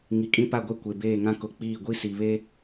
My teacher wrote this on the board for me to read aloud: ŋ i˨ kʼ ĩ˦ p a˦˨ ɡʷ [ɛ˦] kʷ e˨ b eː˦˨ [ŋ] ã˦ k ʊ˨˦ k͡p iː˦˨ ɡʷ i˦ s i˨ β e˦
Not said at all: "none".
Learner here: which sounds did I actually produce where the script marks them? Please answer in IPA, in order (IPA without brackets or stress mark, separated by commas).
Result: ɛ˦, ŋ